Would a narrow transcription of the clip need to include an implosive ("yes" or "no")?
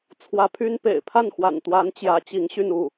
no